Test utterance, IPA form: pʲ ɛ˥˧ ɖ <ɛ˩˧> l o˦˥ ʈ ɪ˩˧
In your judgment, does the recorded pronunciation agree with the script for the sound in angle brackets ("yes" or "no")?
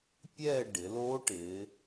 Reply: no